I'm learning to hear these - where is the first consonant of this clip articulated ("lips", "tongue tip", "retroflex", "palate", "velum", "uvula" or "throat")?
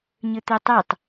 palate